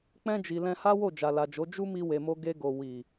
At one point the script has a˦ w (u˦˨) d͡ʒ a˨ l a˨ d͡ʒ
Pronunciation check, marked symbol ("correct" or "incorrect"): incorrect